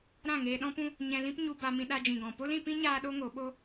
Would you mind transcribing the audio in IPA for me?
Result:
ɾ ã˦˨ ŋ eː˧ ɗ ɔ̃˦ p ũ˦ | ɲ ɛ̃˧ l ĩ˦ p ɲ u˧ b a˧ m ĩ˧ ɗ a˧ d͡ʒ ĩ˨ ɡ ɔ̃˨ p o˦ l ĩ˧ p ĩ˦ ɲ aː˦ ɗ o˦ ŋ o˨˦ ɓ o˦

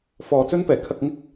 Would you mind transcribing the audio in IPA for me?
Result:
f ɔː˧ t͡s ɵ˥ n p ɛː˨ kʰ ɐ˧ k̚ ŋ ɪ˥ k̚

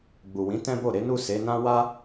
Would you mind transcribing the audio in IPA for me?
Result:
ɡ͡b u˨ w ĩ˨˦ t ɛ̃˦ b o˦˨ ɾ e˨˦ n u˦˨ s e˨˦ n ã˦ w a˦

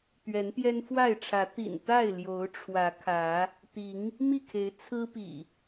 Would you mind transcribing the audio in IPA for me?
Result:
t̪ ɥ ɛ˨˦ n t̪ j ɛ˦ n f w a˥˨ ɪ̯ ʈ͡ʂʰ ä˨˦ t̪ ḭ˨˩ n t̪ a˥˨ ɪ̯ l j o˨˦ ʊ̯ ʈ͡ʂʰ w ä˨˦ kʰ ä˨˦ | t̪ i˨˦ ŋ | m i˥˨ kʰ e˨˦ ɪ̯ t͡sʰ ɹ̩˦ p ḭ˨˩

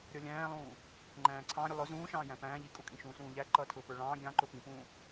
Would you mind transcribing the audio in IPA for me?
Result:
ɾʲ ʌ lʲ æ̃ː lˠ ũː | ŋ͡ǃ æ̃ː ǀʰ ɑ̃ ɾʲ ʊ lˠ ʊ z ũː ʃ ɑ̃ː j æ̃ p æ̃ː ʎ i kʼ u kʼ ĩ ʃ ũː s ũː ʎ æ ǃ ʌː tʰ ʊː p ə˞ ɭ ɑ̃ː ɡʲ ɑ̃ ǃ ʊ p ĩ p ũː

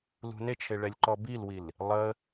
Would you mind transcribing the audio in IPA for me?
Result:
l ṳ n e t͡ʃʰ e ɭ ɛ lʲ ǃ ɔ b i l w i l | lˠ ə

